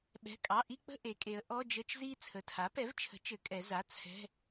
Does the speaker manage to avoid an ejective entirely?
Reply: no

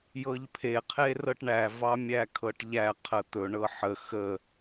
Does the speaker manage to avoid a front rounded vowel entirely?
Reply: yes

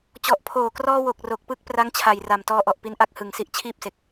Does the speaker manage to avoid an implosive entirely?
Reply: yes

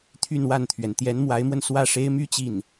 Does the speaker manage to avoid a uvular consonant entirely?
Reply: yes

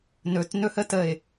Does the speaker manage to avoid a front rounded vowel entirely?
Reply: yes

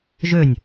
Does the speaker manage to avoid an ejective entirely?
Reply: yes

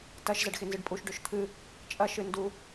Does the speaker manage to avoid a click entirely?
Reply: yes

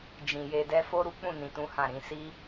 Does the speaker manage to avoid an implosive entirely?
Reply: yes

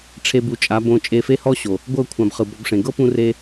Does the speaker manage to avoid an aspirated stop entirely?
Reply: no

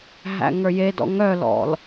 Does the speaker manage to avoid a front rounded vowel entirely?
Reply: no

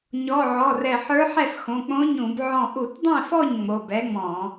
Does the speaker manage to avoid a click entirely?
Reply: yes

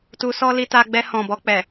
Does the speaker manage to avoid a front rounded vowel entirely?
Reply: yes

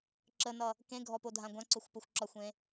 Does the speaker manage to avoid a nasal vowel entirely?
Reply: no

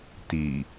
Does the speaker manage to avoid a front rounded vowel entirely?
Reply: yes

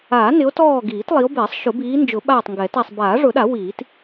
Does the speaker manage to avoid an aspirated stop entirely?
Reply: yes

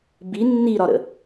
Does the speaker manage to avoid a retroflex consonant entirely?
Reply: yes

